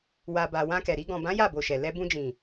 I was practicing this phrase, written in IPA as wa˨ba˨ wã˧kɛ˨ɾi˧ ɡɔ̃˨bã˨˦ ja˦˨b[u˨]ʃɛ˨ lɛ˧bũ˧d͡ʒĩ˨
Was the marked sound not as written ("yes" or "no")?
yes